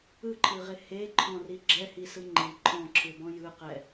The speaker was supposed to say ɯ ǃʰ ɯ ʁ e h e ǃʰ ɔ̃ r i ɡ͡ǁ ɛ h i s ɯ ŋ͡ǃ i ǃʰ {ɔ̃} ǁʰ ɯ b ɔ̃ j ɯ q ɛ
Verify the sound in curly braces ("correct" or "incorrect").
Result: correct